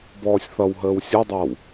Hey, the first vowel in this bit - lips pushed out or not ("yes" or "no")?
yes